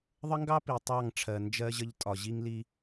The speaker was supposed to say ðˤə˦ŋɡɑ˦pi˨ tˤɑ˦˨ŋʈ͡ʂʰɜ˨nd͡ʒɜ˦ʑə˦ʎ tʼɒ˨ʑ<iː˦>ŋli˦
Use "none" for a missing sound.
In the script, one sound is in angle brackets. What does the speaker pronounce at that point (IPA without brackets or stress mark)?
i˦